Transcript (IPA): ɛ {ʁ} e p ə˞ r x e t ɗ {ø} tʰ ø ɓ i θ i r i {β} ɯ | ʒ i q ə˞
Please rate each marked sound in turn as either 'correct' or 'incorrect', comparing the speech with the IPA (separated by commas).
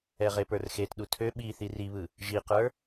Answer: correct, incorrect, correct